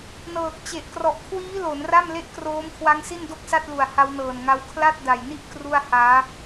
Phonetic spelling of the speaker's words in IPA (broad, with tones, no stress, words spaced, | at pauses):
nɤː˨˩k̚t͡ɕe˨˩ʔ krɔ˨˩ʔkʰwiː˦˥ lo˩˦nra˥˩m le˥˩ʔkroː˦˥mkʰwa˦˥ŋsi˥˩n do˥˩k̚sa˥˩t̚lu˨˩a̯ ha˦˥wnɤː˨˩nŋa˦˥w kʰla˥˩t̚da˨˩jni˥˩ʔ kru˥˩a̯haː˦˥